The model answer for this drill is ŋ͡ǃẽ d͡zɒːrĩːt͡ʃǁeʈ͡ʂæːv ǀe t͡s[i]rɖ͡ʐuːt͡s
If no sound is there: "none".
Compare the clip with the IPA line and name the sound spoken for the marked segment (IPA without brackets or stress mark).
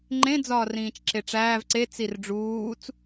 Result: i